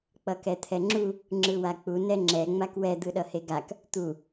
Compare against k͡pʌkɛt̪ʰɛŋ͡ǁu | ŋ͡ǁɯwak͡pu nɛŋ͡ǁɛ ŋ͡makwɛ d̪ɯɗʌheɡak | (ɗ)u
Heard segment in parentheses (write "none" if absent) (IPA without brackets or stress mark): t̪